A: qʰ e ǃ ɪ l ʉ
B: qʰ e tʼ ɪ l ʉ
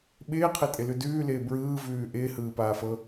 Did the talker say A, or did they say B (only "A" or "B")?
B